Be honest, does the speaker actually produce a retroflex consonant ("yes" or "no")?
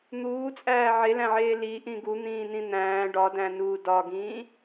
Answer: yes